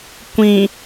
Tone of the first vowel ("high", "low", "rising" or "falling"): low